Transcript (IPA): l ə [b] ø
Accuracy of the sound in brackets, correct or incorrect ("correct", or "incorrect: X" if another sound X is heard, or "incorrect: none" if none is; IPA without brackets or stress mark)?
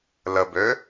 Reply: correct